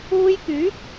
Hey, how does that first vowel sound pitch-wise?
high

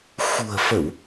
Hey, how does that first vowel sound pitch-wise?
low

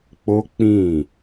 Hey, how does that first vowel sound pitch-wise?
high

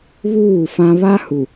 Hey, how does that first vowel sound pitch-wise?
falling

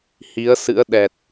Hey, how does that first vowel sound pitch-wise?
rising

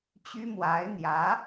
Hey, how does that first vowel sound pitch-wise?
high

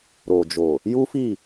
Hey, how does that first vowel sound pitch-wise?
low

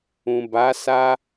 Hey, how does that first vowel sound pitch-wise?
low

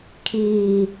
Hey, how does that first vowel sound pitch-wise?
low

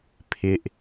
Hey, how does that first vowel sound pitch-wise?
high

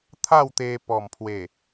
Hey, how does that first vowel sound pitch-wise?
falling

